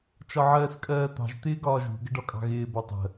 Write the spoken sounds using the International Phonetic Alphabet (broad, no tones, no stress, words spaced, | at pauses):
t͡ʃɒʕɜːskʼɜːt̪ɑ̤ʒ t̪ɪːɡɒːʒṳ ɡəɖɒkʼɑ̤ɣɪː bɒtˤə̤